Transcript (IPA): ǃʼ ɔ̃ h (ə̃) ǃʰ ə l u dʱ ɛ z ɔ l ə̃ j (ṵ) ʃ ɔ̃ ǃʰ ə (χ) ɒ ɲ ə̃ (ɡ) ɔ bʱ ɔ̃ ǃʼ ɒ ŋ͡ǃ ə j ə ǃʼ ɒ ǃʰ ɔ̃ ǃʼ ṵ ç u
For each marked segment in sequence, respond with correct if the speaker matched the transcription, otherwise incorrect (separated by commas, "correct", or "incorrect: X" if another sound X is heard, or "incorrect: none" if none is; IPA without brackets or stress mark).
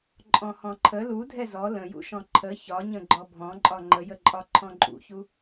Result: incorrect: ɔ̃, correct, incorrect: ç, incorrect: ɡ͡ǃ